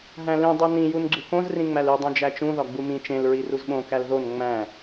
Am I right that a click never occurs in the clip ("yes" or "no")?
no